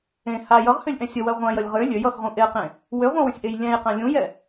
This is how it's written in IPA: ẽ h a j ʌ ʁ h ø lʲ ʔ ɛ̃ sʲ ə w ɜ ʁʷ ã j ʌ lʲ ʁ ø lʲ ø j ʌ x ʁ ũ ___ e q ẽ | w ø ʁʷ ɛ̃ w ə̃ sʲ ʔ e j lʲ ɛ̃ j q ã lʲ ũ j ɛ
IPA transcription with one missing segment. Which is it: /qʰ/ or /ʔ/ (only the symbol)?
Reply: ʔ